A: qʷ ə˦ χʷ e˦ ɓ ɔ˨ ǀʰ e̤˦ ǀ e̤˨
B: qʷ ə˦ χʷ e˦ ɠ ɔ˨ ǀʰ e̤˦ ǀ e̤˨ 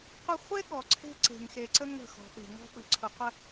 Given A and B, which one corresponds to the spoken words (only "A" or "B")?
B